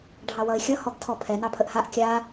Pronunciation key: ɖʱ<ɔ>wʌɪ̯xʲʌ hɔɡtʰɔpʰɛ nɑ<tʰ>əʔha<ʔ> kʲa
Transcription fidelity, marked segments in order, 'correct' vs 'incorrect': incorrect, incorrect, correct

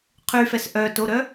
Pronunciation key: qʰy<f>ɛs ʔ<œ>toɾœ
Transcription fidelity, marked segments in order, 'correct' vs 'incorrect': correct, correct

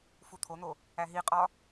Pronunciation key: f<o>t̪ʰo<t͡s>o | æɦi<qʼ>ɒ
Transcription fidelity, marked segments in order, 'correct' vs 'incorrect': incorrect, incorrect, correct

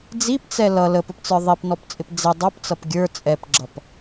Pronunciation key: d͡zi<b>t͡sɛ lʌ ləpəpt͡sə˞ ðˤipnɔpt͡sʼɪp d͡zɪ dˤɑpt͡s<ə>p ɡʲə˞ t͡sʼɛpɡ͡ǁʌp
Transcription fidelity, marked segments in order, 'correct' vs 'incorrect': incorrect, incorrect

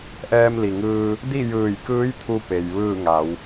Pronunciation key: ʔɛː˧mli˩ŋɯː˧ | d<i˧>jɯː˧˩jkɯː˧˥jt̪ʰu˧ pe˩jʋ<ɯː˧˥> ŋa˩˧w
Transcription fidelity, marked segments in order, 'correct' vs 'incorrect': incorrect, incorrect

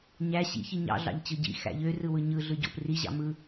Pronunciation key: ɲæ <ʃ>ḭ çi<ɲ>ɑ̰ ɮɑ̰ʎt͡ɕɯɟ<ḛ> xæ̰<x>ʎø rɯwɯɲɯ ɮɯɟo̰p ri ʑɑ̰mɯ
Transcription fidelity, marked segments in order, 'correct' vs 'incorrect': incorrect, correct, incorrect, incorrect

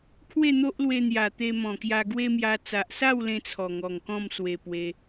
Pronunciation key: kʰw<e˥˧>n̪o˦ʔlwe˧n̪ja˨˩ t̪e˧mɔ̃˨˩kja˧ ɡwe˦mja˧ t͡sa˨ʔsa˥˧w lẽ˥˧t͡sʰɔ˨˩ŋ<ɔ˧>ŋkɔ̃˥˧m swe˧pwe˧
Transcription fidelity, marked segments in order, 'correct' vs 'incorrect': correct, incorrect

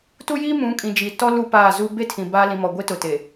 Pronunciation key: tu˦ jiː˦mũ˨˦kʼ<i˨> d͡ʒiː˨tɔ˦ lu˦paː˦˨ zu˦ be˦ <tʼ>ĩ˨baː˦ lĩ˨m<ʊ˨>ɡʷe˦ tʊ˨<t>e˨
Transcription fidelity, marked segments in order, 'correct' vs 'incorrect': incorrect, incorrect, incorrect, correct

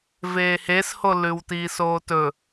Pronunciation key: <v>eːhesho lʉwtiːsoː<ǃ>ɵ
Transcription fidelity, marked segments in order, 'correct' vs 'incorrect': correct, incorrect

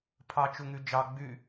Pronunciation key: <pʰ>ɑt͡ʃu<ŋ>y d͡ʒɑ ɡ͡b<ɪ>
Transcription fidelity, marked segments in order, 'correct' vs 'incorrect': correct, correct, incorrect

